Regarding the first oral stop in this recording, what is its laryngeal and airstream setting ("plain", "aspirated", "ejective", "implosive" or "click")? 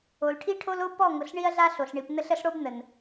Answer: aspirated